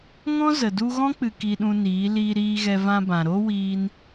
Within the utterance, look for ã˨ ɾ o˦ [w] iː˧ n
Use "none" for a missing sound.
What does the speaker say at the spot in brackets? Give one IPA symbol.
w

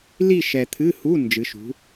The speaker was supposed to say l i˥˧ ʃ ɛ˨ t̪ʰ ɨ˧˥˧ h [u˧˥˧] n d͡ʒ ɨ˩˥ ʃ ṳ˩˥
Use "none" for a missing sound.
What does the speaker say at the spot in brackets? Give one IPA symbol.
u˧˥˧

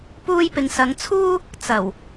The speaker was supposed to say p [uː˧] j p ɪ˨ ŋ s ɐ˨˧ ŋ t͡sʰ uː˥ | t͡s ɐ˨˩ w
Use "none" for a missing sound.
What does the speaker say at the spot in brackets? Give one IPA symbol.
uː˧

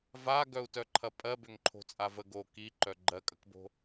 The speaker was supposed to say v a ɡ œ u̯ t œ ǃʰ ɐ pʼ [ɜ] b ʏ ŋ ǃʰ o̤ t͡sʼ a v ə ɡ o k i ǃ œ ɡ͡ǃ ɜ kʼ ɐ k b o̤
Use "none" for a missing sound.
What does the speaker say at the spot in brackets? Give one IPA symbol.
ɜ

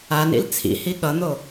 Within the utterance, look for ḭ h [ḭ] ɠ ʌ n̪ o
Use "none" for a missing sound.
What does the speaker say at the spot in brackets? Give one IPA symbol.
i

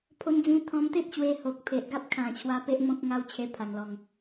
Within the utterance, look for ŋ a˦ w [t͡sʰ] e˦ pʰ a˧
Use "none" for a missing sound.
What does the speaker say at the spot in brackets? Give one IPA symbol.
t͡ɕʰ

